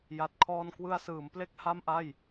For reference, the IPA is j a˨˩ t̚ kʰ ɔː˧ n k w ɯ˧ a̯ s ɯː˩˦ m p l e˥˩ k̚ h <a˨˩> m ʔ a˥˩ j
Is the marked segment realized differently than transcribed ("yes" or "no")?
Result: yes